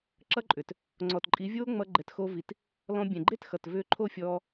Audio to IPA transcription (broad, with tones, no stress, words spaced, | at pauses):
ǁʌ˦ǃʼʏ˨t | ŋ͡ǀɔ˨tǃʼi˨˦vʲoː˦ ŋ͡mʌ˧ ɡ͡ǃɛ˨txo˧vi˨t | lɔ̃˧bʲɛ̃˨ ɡ͡ǃe˦txʌ˨t vʏː˧ǃʰo˦˨fʲɔː˧